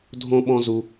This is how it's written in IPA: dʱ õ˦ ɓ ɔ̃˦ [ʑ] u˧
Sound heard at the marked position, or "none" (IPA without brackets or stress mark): z